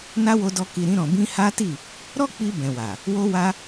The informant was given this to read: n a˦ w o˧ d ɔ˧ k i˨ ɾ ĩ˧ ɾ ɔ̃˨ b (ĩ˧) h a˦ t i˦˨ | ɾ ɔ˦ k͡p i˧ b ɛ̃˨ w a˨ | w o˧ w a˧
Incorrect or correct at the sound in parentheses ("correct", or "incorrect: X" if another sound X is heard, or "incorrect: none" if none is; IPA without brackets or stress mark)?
correct